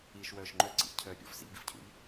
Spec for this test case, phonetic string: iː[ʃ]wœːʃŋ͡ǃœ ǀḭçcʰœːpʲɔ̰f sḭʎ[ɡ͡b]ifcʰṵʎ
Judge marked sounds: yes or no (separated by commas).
yes, no